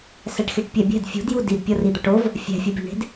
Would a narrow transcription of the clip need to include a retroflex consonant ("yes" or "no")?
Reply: yes